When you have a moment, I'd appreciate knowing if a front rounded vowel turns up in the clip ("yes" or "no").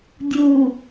no